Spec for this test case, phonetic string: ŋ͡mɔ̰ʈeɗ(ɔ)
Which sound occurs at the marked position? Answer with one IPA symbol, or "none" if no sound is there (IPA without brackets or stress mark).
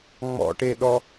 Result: ɔ